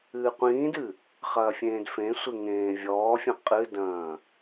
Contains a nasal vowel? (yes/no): yes